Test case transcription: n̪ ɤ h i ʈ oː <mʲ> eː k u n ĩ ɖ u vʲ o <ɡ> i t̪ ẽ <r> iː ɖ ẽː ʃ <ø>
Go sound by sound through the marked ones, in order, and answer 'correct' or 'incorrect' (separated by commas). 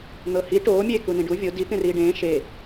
correct, incorrect, correct, incorrect